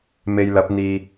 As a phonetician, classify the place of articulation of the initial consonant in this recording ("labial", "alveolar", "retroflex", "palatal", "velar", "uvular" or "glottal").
labial